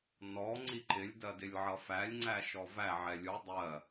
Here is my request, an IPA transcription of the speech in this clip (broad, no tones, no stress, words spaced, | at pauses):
nɔ ŋ͡ǀiǃɪlʲ dɜdɪlʲʕʌfælʲ ŋ͡ǀæʃɔvæ ʕɛlʲu dˤɜ